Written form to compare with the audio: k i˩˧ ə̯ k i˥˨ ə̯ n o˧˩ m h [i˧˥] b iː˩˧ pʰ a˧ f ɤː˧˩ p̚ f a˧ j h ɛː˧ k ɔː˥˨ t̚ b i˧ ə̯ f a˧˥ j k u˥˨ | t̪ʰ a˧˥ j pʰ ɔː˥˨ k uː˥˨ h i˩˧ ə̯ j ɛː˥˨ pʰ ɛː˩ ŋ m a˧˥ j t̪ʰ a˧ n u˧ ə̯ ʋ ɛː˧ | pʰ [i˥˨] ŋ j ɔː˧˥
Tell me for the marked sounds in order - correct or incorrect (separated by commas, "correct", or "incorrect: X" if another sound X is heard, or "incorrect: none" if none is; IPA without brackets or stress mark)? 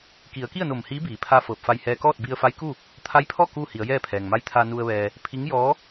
incorrect: iː˧˥, incorrect: i˧˥